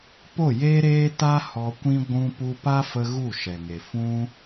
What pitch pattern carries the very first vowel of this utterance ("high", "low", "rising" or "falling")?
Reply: falling